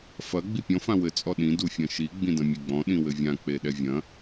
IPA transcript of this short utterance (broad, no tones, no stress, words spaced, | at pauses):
fɐ ɡ͡bipʲɔ̃ fãwɘ t͡sʼɔɗĩ dufʲɐ̃ʃi ɡ͡bĩdɐ̃mʲeɡ͡bɔ̃ ɗĩwɘvʲã k͡peɗɛvʲɐ̃